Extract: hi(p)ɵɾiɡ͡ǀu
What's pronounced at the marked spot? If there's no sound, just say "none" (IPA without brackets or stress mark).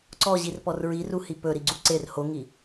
p